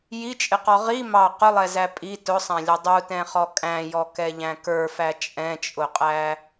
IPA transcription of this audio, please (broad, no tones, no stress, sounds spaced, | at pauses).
j i t͡ʃʼ ɪ q ɔ ʁ i m ɑ q ʊ lˠ ɛ z æ pʼ i t ʊ sˤ æ̃ lʲ ʌ dˤ u t ɛ̃ χ ɔ kʼ æ̃ j ɔ k ɛ ʎ æ̃ k ə˞ f æ t͡ʃʼ ɛ̃ t͡ʃʼ ʊ qʼ æ